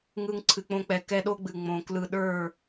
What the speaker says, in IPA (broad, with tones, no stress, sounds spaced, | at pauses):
ŋ ɯ˧ ŋ ǀʰ ɨ˨ k͡p õ˧ k͡p ɛ˨ k ɛ˦ ɗ o˦ ɡ͡b ɨ˨ ŋ͡m õ˨ k l ɯ˧ ɗ ə˞˦˨